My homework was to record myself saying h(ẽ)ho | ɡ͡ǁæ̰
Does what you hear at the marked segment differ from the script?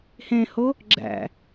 no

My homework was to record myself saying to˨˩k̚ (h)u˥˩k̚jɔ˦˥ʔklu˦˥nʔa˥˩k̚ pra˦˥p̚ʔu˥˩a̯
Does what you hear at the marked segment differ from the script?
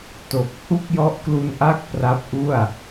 no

